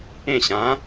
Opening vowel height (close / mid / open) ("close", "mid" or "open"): mid